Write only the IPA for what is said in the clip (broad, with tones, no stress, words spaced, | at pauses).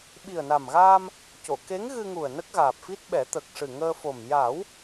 ɓi˨˩ə̯na˨˩mɣaː˧m | co˨˩˨ke˧˥ŋɣɨ˧ŋu˨˩ə̯ nə˦˥k̚ɣaː˨˩p̚fi˦˥t̚ɓɛ˨˩˦ t̪ə˨˩k̚ʂɨ˨˩ŋəː˧fo˨˩m ja˨˩˦w